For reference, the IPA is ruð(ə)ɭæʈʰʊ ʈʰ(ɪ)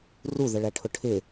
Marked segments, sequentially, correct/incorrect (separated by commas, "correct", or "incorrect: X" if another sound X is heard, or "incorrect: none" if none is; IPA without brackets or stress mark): correct, correct